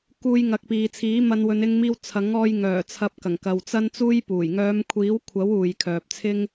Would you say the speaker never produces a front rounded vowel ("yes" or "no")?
no